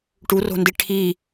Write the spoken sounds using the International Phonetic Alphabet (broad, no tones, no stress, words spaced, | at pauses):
ʈuro̤ndi ʈʰi